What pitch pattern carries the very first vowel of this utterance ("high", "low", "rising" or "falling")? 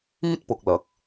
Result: high